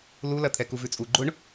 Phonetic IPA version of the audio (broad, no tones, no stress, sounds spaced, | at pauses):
l u l ɐ t̪ʰ ɛ k u v ʉ t͡sʼ u ɡ͡ǃ ʊ ɳ